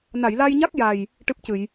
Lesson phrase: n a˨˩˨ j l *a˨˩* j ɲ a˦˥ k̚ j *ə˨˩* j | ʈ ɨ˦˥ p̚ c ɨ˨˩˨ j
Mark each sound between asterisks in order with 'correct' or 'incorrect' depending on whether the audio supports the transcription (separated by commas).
incorrect, incorrect